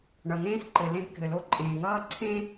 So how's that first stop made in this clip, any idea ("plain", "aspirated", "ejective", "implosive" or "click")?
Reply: click